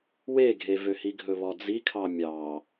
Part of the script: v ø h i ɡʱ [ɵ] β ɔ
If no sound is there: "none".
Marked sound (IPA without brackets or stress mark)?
ɵ